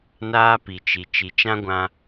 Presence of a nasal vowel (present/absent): present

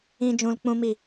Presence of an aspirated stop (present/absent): absent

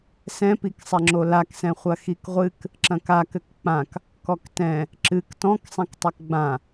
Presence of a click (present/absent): present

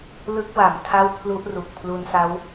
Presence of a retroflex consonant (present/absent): absent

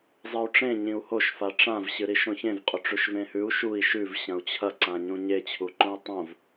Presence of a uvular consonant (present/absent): present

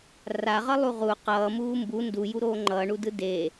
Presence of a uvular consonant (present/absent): present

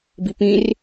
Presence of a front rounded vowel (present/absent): absent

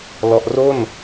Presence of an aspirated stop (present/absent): absent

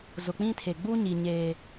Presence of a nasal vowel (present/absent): present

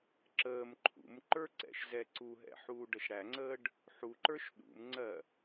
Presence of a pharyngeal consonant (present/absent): present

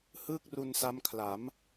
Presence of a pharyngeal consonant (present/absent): absent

